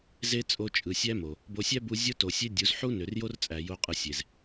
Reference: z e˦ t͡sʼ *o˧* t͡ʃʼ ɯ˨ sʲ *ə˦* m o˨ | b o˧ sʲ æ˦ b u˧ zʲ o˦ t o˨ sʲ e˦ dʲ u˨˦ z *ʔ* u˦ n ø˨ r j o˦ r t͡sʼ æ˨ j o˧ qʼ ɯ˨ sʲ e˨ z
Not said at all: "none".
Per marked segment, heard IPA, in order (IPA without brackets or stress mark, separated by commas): o˧, æ˦, ħ